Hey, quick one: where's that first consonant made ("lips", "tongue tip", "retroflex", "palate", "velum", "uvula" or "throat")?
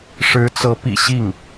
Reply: retroflex